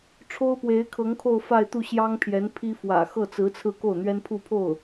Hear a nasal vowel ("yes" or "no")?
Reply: no